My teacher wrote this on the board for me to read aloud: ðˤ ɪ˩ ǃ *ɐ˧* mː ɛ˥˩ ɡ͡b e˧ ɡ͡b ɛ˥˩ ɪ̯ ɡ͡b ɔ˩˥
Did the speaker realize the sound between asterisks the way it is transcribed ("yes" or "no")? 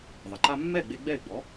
no